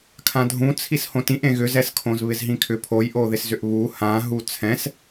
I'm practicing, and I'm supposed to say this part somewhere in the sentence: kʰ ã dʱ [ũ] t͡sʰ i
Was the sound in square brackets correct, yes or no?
yes